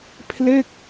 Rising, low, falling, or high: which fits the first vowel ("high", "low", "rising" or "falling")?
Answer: falling